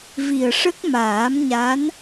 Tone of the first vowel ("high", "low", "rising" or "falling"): low